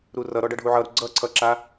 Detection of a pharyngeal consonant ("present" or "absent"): present